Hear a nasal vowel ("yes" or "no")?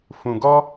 yes